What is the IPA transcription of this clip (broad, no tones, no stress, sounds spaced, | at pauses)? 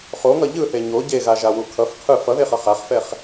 χ o ŋ ʌ ʎ ɯ θ e ɲ o ɟ e ɣ a ʒ a w u kʰ ʌ f qʰ ɯ f ʌ ð e χ ʌ χ a χ f ɛ χ